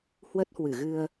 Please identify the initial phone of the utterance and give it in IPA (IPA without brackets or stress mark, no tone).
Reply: h